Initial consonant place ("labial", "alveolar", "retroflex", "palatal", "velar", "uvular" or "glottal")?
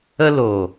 alveolar